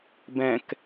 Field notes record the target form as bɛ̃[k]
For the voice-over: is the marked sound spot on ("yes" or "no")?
yes